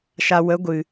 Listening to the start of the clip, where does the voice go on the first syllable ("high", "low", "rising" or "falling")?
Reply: low